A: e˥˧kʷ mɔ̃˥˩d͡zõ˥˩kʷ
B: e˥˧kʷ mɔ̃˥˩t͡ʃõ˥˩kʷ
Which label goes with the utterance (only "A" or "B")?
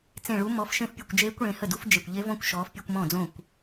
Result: A